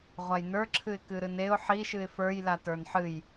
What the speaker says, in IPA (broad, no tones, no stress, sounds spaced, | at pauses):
ʁʷ a j n ə˞ ǁʰ ɨ ɪ̯ k ɨ ɾ ɨ n e ʊ̯ ħ i ʃ ɨ ɪ̯ f ə˞ j l a t ə˞ n ħ ɨ j